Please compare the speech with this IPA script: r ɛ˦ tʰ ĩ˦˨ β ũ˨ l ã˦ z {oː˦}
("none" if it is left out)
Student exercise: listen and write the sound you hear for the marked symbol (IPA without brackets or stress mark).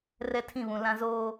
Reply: oː˦